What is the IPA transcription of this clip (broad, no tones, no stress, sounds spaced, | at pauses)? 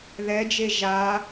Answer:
ð ɛ d͡ʒ e ʒ a